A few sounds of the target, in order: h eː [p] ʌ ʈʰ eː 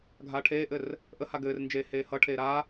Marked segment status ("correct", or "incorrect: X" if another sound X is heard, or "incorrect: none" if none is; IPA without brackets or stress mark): incorrect: h